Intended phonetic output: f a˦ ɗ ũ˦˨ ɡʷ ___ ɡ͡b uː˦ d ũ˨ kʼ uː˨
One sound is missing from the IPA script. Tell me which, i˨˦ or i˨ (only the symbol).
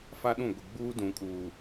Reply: i˨